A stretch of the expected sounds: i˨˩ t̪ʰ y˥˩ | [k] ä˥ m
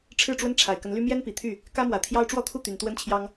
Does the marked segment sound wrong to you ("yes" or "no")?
no